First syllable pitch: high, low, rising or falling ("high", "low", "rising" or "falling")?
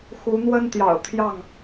rising